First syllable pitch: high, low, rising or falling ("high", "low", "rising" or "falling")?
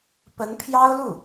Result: rising